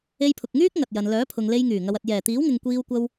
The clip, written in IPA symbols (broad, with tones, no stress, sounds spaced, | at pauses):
e˧ j pʰ ʊ˨ k̚ ŋ yː˥ k̚ ŋ ɐ˨ t̚ j ɐ˨ n l œː˨˥ pʰ ʊ˨ ŋ l e˧ j ŋ yː˨˩ ŋ ɐ˨ w ɐ˨ t̚ j ɛː˨˩ t̪ iː˨˥ w ŋ ɪ˨ ŋ kʷ iː˧ w kʷ ɐ˧ w